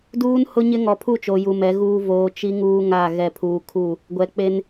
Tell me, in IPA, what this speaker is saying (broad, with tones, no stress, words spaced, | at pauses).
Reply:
duː˦nhʊ˦ɲɪ˦ ŋɔ˨pʰu˦˨t͡ʃo˨ ju˨mɛ˨˦ɣuː˦ voː˨ t͡ʃi˦ ŋuː˦ŋa˦˨ ɣɛ˦˨pʰuː˦ kʰu˦˨ | ɡʷɛ˨k͡pe˦n